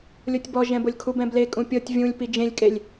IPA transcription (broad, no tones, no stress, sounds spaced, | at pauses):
lʲ o tʲ b ɔ ʒ ɛ̃ b o lʲ kʰ u b ɛ̃ b l e kʼ ũ pʲ ɤ tʲ vʲ ũ lʲ p i d͡ʒ ẽ lʲ kʼ e lʲ